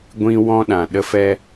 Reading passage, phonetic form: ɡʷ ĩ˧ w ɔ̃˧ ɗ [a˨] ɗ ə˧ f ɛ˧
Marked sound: incorrect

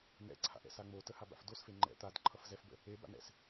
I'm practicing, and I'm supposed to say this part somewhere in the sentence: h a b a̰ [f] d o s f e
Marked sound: correct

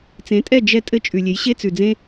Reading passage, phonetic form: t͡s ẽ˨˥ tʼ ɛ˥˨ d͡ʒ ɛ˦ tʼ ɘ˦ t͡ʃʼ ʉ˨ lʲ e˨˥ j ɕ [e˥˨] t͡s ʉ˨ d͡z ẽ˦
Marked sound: incorrect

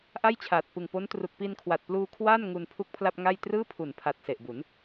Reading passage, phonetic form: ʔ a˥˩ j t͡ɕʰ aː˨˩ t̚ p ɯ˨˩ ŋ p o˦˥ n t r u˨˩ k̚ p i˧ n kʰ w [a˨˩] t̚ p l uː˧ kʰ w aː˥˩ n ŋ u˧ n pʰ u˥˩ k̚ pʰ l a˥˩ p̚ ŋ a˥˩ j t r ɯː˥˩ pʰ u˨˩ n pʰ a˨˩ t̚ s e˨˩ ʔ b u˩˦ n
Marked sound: correct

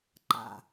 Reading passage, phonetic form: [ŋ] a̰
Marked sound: incorrect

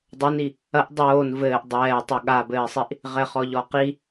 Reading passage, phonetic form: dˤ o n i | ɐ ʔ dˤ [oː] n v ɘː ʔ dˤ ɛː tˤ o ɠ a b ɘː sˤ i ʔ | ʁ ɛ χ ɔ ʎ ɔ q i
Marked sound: correct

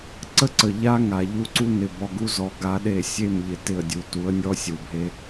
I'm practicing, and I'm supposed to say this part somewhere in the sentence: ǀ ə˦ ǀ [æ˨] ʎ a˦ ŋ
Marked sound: incorrect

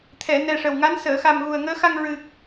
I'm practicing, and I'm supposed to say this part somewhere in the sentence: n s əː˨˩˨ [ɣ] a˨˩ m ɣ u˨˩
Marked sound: incorrect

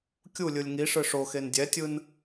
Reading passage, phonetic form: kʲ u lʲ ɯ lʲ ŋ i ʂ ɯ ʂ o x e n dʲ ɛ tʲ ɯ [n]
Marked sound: correct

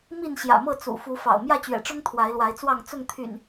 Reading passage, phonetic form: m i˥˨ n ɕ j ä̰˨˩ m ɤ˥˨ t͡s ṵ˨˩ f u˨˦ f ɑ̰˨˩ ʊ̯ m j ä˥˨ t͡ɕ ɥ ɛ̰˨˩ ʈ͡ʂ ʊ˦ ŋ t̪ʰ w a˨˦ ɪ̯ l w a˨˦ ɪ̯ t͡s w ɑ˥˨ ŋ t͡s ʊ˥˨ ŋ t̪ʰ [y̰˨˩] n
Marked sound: correct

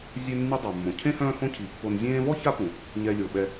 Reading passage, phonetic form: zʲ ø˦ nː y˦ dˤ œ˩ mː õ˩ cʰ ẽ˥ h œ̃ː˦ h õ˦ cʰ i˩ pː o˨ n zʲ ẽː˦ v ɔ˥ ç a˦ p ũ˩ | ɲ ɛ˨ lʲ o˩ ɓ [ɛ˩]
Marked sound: incorrect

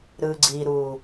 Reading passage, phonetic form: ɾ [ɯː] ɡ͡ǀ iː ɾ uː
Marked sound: correct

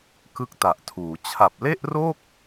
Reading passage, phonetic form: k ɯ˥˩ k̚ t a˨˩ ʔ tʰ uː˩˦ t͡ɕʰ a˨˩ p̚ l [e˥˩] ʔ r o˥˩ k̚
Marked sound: correct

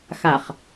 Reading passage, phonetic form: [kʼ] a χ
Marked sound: incorrect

